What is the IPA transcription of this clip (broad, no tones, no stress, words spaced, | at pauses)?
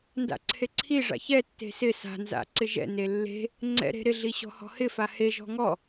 nda̰ǀʰeǀʰiʐa̰ çɛtːe̤ sɪ sa̤nza̰ ǀɪʒɛ̰ne lːe̤ | ŋ͡ǀɛ̰ɾe̤ ɾɪɮi ɕɔ̤hɔ̤hɪfa heʒɔ̤ ŋɔ